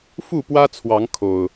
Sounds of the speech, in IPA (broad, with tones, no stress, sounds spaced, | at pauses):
f u˥˨ p w ä˦ t͡sʰ w ɑ˨˦ ŋ kʰ o˨˩ ʊ̯